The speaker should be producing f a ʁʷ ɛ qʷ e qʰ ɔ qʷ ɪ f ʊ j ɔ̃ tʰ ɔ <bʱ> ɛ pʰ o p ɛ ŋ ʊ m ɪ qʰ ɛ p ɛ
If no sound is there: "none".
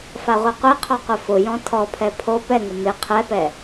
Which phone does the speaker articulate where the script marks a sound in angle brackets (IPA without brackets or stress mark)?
pʰ